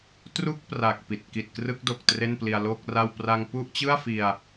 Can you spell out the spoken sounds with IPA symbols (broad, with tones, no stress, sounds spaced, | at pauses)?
t r u˥˩ k̚ p r a˨˩ k̚ p i˨˩ t̚ k i˨˩ t̚ k r ɯ˦˥ k̚ d o˨˩ k̚ t r e˥˩ n p l i˧ a̯ l o˥˩ k̚ r a˥˩ w p r a˧ ŋ p u˥˩ ʔ t͡ɕ ɯ˥˩ a̯ f i˧ a̯